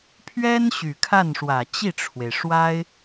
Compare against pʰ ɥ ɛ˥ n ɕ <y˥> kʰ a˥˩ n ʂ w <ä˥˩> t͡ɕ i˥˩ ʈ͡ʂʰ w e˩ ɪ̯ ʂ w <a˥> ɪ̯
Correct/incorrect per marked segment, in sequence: incorrect, incorrect, correct

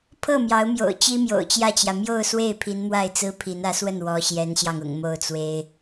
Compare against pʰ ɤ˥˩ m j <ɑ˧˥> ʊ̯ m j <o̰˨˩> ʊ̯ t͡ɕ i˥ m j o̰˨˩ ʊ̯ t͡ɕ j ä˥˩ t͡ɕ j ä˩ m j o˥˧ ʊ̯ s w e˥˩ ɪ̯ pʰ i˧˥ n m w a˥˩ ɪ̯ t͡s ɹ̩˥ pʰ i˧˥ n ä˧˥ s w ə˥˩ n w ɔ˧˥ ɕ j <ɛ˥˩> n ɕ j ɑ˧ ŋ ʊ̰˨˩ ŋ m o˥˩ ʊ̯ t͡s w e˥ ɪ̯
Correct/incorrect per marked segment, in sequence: correct, correct, incorrect

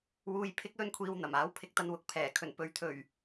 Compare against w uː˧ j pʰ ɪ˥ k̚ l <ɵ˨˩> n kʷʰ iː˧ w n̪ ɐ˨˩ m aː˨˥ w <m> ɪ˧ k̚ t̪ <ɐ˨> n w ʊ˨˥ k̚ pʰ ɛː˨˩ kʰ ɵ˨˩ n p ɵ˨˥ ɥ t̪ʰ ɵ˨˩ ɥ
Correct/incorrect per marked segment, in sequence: incorrect, incorrect, incorrect

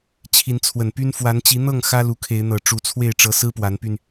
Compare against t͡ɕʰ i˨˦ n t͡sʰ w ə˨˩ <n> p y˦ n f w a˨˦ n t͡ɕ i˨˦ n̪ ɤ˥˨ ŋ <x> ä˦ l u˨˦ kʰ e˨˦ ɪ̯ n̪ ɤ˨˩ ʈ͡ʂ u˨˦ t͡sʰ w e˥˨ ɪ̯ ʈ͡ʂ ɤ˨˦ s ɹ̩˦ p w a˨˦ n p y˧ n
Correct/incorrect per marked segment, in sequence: correct, correct

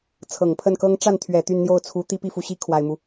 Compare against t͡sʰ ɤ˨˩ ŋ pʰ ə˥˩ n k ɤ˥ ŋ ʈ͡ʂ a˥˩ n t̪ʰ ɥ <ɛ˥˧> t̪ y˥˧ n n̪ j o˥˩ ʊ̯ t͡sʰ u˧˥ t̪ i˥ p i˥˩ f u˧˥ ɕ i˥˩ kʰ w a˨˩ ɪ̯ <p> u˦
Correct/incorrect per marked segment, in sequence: incorrect, incorrect

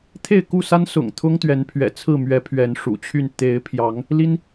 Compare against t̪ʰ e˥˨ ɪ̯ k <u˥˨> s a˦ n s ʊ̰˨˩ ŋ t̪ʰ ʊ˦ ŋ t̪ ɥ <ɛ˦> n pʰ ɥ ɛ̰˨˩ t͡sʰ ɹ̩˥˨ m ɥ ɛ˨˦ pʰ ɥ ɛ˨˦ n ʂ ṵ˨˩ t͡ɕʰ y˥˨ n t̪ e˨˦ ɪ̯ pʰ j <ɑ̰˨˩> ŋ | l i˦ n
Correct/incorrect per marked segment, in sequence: correct, incorrect, incorrect

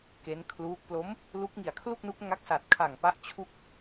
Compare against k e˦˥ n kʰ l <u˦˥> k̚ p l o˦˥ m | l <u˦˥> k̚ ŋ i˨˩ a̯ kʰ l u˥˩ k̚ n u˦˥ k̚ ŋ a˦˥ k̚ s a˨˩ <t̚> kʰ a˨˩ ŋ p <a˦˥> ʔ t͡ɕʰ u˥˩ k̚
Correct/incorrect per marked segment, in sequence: incorrect, correct, correct, correct

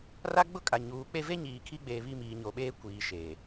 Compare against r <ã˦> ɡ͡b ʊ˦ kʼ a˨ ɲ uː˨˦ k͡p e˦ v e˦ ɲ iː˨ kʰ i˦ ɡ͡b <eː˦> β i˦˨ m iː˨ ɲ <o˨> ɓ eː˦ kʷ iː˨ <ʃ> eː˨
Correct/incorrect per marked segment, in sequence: incorrect, incorrect, correct, correct

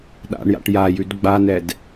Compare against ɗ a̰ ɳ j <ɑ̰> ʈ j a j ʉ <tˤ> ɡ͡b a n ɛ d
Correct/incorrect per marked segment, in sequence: incorrect, incorrect

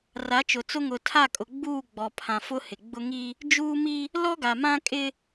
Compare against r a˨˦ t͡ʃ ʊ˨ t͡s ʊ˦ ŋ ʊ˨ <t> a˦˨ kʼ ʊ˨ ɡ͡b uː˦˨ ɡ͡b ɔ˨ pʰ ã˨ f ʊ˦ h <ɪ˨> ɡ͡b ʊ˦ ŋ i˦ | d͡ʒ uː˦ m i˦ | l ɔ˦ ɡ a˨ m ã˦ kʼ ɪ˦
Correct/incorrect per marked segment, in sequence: incorrect, correct

